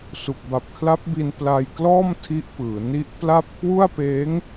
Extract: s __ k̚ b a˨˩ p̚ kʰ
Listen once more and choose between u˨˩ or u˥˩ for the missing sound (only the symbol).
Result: u˨˩